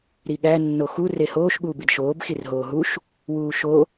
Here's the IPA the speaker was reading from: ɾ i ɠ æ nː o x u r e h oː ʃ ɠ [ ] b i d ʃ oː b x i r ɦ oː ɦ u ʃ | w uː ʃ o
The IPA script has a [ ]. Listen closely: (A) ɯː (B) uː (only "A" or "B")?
B